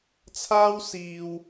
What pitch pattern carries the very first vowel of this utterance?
high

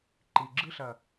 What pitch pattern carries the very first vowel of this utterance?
low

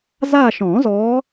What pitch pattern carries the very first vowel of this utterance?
falling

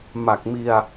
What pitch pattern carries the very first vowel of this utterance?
low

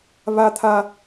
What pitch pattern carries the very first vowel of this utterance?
high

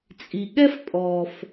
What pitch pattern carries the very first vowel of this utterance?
low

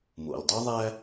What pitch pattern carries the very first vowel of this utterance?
low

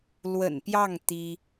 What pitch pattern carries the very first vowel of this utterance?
low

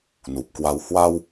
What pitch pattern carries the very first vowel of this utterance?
low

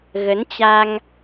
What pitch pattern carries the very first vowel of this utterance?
rising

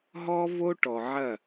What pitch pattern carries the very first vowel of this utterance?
high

